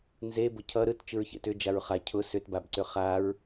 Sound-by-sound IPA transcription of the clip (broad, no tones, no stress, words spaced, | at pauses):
nze bʊcʰʌ ɾɯt t͡ʃɯɹçḛtʏ d͡ʒaɹχa cʰʊ sʏtbabǀʏ χaɹ